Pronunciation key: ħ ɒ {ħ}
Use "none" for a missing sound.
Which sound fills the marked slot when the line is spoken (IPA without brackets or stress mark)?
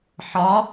none